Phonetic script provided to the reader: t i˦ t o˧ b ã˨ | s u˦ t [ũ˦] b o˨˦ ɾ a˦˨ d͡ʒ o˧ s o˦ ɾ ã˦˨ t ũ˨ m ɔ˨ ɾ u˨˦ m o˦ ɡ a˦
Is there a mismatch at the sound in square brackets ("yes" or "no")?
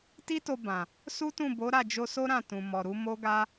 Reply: yes